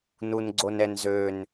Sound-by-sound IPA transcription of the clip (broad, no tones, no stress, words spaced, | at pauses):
nunɡ͡ǀonɛnzøn